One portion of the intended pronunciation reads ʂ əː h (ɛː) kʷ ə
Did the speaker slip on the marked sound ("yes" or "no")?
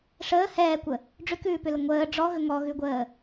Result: no